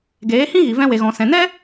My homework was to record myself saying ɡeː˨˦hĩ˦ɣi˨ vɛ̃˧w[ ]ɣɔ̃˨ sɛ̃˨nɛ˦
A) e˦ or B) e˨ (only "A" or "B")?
B